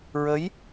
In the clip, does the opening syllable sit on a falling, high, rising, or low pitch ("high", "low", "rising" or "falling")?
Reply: rising